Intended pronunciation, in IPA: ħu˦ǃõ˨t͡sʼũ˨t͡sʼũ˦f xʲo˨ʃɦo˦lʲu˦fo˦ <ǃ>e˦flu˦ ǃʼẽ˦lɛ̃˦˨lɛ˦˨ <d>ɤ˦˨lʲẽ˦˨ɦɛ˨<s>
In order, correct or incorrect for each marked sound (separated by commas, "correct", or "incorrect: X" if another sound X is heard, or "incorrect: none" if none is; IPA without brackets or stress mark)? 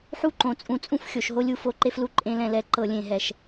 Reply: correct, incorrect: ǃ, incorrect: ʃ